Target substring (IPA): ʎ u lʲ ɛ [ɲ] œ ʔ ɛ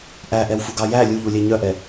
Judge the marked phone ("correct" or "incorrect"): correct